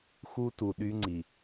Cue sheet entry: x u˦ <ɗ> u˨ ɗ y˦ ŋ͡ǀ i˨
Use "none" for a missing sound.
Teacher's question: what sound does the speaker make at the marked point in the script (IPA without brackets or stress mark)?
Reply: t